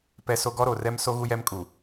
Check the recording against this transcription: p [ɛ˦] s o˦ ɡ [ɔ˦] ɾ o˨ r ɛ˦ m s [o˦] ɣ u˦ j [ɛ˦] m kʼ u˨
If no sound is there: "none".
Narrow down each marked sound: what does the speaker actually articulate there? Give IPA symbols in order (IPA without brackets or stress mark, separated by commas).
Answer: ɛ˦, ɔ˦, o˦, ɛ˦